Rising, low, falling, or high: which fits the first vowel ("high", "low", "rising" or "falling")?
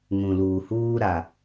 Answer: low